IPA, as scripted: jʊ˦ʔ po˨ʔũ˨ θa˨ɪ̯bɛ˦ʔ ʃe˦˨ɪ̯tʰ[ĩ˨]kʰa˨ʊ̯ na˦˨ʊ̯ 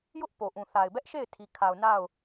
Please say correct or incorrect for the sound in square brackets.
incorrect